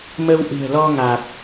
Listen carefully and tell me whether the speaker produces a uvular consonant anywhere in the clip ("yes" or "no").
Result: no